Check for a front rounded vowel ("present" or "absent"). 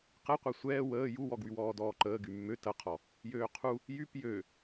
present